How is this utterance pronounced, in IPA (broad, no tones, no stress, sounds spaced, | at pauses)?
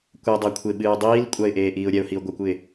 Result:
kʷ ɛ dˤ a kʷʰ e ɓ ɨː dˤ iː l kʷʼ a ɪ̯ ʔ eː ʔ iː ʊ̯ ɾʲ ɛ ʊ̯ h i ʊ̯ ɡʷ ɐ kʷ ɨ ɪ̯